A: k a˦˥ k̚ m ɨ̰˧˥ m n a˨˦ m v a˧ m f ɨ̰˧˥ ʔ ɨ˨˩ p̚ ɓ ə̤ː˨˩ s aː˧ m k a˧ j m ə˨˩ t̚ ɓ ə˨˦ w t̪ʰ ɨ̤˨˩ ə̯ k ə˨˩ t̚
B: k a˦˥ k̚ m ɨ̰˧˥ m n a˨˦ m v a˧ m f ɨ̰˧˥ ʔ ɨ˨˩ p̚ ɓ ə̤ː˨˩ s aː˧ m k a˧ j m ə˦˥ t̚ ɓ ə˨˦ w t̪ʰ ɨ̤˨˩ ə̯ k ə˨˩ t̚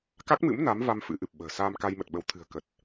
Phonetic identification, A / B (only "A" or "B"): A